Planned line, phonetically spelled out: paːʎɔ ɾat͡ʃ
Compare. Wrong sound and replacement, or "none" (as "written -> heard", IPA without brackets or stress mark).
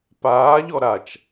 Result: none